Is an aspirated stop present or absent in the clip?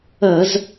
absent